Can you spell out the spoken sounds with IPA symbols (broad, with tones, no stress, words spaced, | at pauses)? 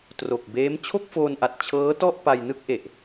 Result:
tro˨˩k̚ beː˦˥m t͡ɕʰo˥˩k̚foː˧nʔa˨˩t̚ t͡ɕʰɤː˦˥tɔ˥˩ʔ pa˧jnɯ˥˩k̚ʔe˨˩ʔ